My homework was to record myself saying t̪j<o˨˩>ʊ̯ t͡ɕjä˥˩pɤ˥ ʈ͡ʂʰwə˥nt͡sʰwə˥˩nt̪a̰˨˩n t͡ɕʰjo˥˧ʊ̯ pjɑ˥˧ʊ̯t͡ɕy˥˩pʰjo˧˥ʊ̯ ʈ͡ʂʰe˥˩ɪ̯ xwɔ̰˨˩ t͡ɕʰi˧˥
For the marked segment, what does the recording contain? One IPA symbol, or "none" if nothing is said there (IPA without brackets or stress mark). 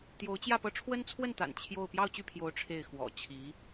o˧˥